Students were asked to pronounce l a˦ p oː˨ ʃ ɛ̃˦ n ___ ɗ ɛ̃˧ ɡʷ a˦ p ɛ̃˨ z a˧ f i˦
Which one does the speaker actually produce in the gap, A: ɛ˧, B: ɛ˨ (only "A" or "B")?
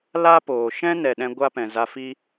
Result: B